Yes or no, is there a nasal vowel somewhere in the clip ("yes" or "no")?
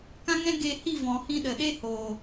yes